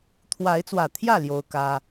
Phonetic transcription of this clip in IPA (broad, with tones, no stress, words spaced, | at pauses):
t̪ʰwa˨˦ɪ̯t͡swä˨˩t̪ʰjä˥˨ ljo˦ʊ̯kä˦